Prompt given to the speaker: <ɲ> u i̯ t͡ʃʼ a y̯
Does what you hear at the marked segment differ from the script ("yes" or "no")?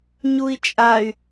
no